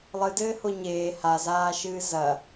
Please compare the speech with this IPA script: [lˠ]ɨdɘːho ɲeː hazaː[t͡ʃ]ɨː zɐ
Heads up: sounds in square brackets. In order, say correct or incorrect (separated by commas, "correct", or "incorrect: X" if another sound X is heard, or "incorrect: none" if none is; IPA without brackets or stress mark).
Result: correct, incorrect: ʃ